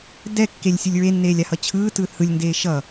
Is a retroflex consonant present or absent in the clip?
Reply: absent